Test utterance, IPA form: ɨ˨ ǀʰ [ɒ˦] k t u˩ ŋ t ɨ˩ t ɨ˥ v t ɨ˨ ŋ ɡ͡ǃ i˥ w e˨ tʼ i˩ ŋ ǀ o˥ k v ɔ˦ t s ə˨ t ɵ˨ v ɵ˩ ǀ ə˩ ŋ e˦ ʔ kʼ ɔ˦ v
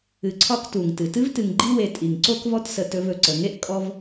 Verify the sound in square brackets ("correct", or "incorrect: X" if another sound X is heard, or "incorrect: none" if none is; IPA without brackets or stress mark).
correct